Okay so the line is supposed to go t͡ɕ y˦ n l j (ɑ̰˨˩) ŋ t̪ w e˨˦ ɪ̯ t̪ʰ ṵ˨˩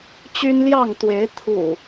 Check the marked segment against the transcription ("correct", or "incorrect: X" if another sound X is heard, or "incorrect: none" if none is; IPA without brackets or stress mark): incorrect: ɑ˥˨